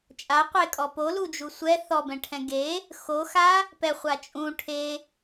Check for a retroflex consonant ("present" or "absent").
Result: present